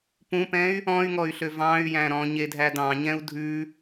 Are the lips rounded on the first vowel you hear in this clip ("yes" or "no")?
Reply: yes